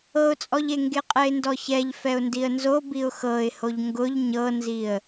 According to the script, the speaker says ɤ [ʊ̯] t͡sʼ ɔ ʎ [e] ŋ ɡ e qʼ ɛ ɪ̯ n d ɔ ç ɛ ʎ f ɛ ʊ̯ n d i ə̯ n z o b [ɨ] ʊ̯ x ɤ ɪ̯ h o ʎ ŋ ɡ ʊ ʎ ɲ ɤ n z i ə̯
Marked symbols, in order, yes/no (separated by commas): yes, yes, no